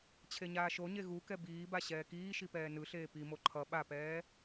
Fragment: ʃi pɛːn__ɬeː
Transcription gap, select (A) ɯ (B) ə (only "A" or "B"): A